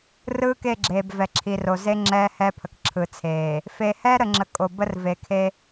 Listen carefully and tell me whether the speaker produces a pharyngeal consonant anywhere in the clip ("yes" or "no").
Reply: no